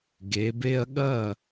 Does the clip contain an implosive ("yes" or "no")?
yes